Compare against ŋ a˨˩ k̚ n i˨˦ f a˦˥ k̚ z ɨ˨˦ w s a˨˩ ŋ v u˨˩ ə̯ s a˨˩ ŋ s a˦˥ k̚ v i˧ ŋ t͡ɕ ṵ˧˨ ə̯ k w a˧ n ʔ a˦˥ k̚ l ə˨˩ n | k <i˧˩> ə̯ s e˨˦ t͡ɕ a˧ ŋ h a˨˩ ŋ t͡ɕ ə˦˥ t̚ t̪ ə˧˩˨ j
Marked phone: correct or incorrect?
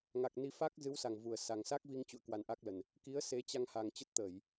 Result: incorrect